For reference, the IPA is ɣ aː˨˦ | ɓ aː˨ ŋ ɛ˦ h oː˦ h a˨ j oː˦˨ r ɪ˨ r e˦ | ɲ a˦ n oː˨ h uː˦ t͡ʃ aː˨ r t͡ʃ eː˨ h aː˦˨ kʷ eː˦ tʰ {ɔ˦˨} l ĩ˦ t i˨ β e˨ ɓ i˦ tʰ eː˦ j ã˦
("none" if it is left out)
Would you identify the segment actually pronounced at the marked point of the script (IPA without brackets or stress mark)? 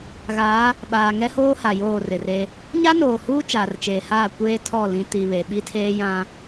ɔ˦˨